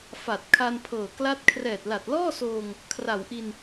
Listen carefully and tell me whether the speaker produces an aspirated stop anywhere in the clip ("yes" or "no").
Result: yes